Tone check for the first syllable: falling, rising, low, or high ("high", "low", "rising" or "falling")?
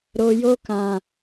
low